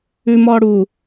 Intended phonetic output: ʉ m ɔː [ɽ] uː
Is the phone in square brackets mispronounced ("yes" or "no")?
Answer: no